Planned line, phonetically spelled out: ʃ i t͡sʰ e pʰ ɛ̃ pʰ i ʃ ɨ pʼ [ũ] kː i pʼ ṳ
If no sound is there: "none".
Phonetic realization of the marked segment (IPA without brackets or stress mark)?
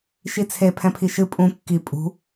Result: ũ